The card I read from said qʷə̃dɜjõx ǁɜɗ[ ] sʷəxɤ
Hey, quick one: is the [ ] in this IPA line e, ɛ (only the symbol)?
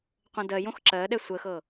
ɛ